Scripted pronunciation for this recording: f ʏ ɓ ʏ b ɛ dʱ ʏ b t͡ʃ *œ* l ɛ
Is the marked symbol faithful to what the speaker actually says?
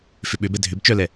yes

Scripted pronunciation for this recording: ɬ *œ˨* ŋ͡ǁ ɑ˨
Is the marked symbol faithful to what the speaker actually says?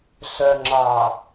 yes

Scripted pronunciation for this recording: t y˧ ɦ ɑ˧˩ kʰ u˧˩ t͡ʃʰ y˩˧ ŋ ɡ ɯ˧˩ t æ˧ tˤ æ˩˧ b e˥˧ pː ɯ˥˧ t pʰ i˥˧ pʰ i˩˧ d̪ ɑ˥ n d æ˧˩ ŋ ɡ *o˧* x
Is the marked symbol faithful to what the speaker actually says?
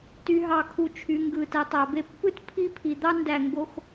yes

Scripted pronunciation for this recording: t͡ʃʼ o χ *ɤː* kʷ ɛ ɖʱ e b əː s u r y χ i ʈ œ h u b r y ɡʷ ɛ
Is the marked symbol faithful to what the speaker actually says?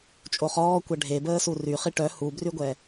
no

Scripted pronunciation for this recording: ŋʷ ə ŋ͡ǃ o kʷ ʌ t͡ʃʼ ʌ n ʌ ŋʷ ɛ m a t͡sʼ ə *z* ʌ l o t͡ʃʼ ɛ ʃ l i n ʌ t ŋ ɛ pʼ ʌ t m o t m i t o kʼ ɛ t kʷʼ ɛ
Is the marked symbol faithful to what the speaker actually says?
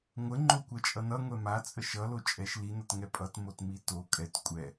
no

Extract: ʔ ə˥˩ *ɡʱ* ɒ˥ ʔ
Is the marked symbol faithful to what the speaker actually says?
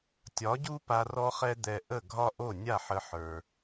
yes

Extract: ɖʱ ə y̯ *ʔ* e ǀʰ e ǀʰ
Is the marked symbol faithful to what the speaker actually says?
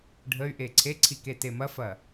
yes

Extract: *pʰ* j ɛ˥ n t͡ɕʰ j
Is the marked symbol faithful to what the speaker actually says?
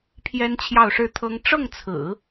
yes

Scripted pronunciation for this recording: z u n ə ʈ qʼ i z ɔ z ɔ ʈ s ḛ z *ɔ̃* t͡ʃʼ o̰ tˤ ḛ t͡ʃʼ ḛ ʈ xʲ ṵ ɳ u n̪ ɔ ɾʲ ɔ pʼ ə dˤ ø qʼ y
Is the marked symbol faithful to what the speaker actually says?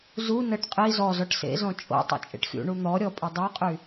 yes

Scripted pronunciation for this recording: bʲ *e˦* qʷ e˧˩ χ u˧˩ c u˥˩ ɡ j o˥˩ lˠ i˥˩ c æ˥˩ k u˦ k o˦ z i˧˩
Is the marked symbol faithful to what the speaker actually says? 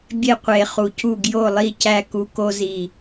no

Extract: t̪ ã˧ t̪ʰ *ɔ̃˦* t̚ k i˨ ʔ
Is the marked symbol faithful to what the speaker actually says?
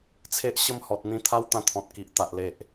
no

